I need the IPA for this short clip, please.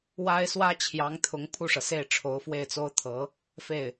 wa˥ɪ̯ swä˥t͡ɕʰjɑ˧˥ŋt̪ʰʊ˧˥ŋ pʰu˥˩ʂɤ˩se˥˩ɪ̯ ʈ͡ʂʰo˧˥ʊ̯fwe˥˩ɪ̯t͡so˥ʊ̯ t̪ʰɤ˧˥ | fe˥˩ɪ̯

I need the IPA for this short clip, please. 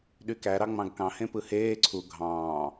ɗykæ ɾɑŋ͡mɑ̃ɡkɑ̃ hẽpɯheː ǀʰu ɡʱɑ̃ː

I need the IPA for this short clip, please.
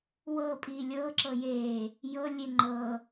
wɤ pʼiːlʲɤː ǁɤjeː | jɤ lʲeŋ͡ǃɤː

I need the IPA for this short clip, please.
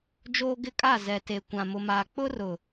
d͡ʒoː˦ ɡɪ˦kʼa˦˨ zɛ˨te˨ kʷã˨mʊ˨maː˨ k͡pʊ˦rʊ˨

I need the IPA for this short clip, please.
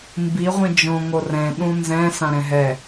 mbi ʁʷĩd͡ʒõ ŋorɛ̃ɗũ nzɛ̃ sãɾɛ̃ɦɛ

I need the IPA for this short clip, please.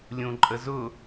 lʲũǃʼəzʊ

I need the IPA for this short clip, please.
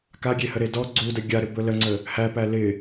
kaɡʲehəɾe dɔ ɡ͡ǀudə ɡʲaɾɪbɵ ləŋ͡ǀə | hæpæ lɪ

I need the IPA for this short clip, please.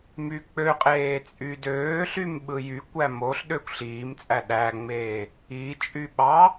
myk͡pøqʼeː t͡sʼydøːɬym ɓɯjykʷæ moɬ ɗøkʷɬiːmt͡sʼæ ɗæŋ͡meː | it͡ʃʼy ɓɑ

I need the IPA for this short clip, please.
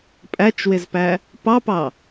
pʼæt͡ʃwɪzpæ | pɑpɑ

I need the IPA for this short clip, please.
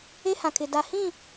e˦hã˨kʰɪ˨ da˨ hĩ˦˨

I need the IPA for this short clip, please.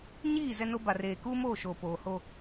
ɲiː˦˨ zɛ˦no˦ ba˨reː˨ kuː˦moː˦˨ʃoː˨ poː˨ho˦

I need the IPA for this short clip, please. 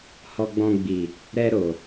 hɔ˧ɡ͡bɔ̃˧ɡ͡bi˨ | ɾɛ˧ɾo˨

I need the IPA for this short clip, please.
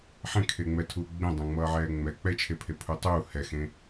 ħẽkʰeŋ͡mɛtʰuː ɡ͡bẽdˤẽŋ͡mʌːʕɛː ŋ͡mɛ k͡pɛt͡ʃʰepʰepʰu tˤuː hɛxẽ

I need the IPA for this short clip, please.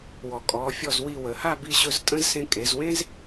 wɔ˩˧ kʼɔ˩˧fʲɔ˧˩zwi˧˩ wə˩˧ha˥˧ bi˧ɕɵ˧z tʼə̃˥z sẽ˧kʼe˩˧zwẽ˥z

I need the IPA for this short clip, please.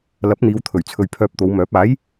lɐ˨˥p̚n̪iː˨˧wt̪ʰɵ˨˩ɥt͡sʰɵ˨ɥ pʰœː˧p̚t̪o˨˧wmœː˨˥p̚ aː˨˥j

